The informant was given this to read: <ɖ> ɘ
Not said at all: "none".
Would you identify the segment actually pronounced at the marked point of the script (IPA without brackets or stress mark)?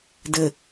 d